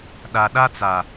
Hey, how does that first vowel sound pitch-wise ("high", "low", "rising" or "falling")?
low